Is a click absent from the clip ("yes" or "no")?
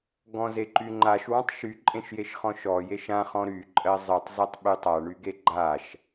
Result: no